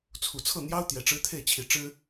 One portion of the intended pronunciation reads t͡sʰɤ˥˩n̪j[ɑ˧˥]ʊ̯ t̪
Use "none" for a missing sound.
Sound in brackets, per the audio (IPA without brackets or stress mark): ɑ˥